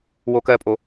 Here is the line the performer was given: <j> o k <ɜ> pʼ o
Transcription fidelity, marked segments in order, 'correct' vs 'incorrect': incorrect, correct

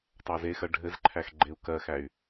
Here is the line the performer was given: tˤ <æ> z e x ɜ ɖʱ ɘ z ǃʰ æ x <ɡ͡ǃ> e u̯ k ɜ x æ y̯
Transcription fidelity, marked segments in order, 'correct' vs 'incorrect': correct, correct

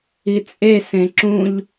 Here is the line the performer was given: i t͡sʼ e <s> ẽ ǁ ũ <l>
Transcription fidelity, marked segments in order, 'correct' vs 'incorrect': correct, incorrect

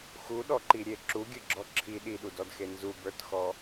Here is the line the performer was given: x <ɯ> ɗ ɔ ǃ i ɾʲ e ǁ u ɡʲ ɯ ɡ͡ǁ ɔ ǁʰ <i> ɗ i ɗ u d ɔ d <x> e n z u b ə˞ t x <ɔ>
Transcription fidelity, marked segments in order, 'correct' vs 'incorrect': incorrect, correct, correct, correct

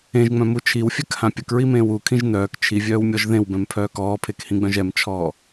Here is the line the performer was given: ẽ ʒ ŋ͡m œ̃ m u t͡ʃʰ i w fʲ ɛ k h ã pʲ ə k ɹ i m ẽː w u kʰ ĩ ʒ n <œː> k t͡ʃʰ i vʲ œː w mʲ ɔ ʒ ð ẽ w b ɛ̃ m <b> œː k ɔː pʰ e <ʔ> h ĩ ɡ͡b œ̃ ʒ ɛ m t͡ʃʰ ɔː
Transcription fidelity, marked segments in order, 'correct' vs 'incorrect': correct, incorrect, incorrect

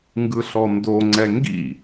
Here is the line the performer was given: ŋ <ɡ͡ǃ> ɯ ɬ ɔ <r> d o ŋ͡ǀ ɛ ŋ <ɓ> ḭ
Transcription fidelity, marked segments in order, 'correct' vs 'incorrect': incorrect, incorrect, incorrect

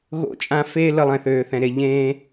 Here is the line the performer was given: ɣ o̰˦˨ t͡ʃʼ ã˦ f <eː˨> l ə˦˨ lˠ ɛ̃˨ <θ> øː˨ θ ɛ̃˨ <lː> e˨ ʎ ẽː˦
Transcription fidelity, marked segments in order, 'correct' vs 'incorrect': incorrect, correct, incorrect

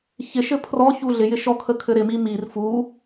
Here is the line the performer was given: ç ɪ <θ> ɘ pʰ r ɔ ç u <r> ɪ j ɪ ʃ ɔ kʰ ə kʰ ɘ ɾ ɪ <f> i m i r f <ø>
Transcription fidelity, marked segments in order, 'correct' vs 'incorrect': incorrect, incorrect, incorrect, incorrect

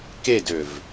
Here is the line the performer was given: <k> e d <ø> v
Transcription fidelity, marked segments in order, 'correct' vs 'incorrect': correct, correct

